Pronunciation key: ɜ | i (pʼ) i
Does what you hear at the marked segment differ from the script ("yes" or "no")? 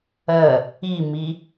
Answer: yes